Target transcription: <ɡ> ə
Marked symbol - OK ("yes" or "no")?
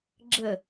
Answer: no